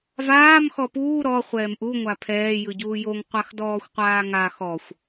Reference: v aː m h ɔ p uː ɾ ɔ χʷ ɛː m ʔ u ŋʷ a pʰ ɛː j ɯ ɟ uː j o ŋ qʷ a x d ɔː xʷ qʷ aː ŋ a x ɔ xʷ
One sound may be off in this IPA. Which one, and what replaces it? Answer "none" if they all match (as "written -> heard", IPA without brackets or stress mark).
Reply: h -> x